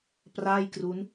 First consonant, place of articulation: labial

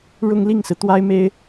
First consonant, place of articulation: retroflex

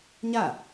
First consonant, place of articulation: palatal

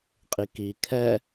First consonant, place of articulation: uvular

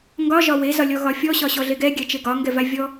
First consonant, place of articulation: velar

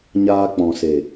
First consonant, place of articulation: palatal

